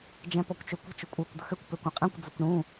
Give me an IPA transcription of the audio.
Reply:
d͡ʒɛ̃pɔkʷt͡ʃøkʷə̤ t͡ʃʊkʷʼə˞kʷ d̪əxøkʷ pøkʷɛ̃qʼɛ̃kʷ d͡zʊkʷɳũ

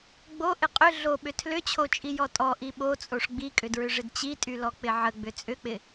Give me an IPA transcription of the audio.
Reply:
ɡ͡bo ʔɪqʼʏ ɮoɓʏ tʰlʏt͡ɕʰot͡ʃʼijɔ tʼɔ ʔiɓot͡sʼoʂ ɡ͡bikʼʏdɹʏʐɪd t͡ɕitʼylɔ k͡pɪʕə ɡ͡bʏt͡sʼʏk͡pɪ

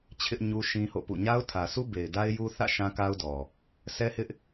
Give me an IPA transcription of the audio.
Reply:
t͡ɕʰɪ˦ʔ ɲu˦ʃĩ˦ho̰˦˨pṵ˦˨ ɲa˦ʊ̯tʰä˨su˦ be˨ɪ̯da˦ɪ̯ju˦ θä̰˦˨ ʃã˦ka˦ʊ̯dɔ˨ | sʰɛ˦hɪ˦ʔ

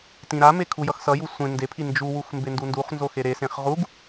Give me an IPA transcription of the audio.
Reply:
tĩɾame kʰujʌxsʌju sʷẽ ndepʰi nd͡ʒuwux mbendunduχnzo xeɾesẽχ ʁuɡ

